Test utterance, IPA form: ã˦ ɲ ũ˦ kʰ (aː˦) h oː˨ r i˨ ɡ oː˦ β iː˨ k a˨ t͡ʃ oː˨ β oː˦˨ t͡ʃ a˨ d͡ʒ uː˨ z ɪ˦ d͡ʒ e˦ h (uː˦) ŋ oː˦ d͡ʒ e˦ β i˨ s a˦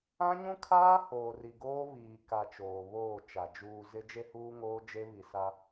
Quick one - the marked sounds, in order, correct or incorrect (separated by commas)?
correct, correct